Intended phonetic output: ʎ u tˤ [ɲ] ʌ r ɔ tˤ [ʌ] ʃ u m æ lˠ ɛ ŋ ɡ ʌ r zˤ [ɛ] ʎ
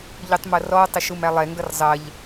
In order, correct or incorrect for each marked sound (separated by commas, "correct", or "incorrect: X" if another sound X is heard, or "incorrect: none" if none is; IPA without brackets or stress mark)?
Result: incorrect: m, correct, incorrect: ɜ